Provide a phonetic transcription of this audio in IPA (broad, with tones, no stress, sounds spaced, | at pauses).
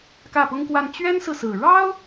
k ä˥˩ p ʊ˥ ŋ k w a˥˩ n t͡ɕ ɥ ɛ˥ n s ɹ̩˨ s ɹ̩˨˩ ɻ ɑ˥ ʊ̯